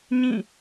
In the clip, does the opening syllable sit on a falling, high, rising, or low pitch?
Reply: falling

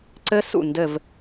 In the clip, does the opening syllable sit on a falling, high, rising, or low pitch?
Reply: high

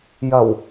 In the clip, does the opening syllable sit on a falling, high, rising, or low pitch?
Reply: low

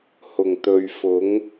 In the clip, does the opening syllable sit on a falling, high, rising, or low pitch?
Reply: low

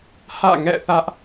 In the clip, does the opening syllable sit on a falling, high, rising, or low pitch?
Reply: falling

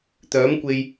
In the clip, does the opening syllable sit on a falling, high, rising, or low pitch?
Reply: rising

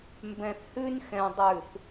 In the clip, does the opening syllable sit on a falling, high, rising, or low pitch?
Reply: low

